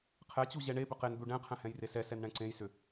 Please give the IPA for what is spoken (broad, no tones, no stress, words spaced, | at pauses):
qʰɛt͡ɕu ʑɛɳebʏ qen d̪uɖɛ̃qʰɛ̃ hɛ̃jresɛsɛn ɳɛ̃ǀẽjsʏ